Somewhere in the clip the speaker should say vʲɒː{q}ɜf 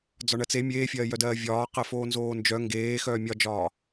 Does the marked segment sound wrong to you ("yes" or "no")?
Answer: no